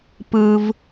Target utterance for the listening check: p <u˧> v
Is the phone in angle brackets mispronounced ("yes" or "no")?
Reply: yes